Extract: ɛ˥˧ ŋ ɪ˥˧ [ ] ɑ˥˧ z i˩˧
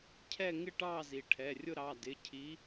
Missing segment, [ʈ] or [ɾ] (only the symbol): ʈ